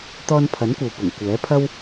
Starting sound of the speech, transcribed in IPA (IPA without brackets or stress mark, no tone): t̪